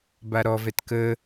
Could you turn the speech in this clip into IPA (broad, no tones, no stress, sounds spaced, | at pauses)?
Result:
b a ɾ ɔ v ɛ t k ə